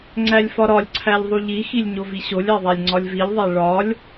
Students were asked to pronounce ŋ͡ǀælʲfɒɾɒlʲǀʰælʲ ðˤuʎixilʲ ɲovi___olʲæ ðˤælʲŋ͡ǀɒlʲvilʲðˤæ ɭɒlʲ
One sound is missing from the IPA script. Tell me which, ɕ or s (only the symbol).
ɕ